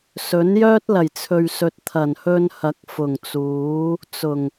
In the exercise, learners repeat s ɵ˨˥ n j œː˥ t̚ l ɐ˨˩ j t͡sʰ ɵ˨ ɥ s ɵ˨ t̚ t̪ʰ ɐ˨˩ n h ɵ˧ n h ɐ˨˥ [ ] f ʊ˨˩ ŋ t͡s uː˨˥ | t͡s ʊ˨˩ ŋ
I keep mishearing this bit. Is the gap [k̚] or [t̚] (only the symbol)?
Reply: k̚